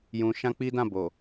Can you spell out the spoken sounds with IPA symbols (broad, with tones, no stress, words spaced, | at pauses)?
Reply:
jũ˧ ʃã˦k͡pi˦dã˦˨ bo˨